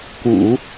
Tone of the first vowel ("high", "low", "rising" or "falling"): low